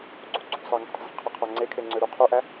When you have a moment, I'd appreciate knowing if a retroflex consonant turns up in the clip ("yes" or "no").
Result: no